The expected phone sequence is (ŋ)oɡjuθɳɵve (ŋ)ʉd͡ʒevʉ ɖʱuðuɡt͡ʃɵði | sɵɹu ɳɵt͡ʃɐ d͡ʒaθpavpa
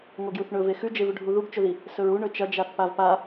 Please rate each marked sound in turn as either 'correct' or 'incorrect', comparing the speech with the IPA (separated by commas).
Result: correct, incorrect